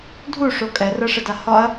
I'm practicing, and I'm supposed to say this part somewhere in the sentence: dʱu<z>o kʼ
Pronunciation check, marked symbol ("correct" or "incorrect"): incorrect